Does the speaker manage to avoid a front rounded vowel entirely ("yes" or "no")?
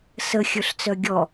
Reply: no